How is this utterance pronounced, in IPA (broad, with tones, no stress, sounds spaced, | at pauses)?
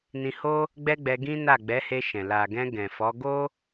n ĩ˧ h o˦ | ɡ͡b ɛ˦ ɡ͡b ɛ˧ ɡ ĩ˦ n a˦˨ ɡ͡b ɛ˨˦ h e˧ ʃ ɛ̃˨ l a˨ ɡ ɛ̃˧ ɡ ɛ̃˨ f ɔ˨˦ ɡ o˦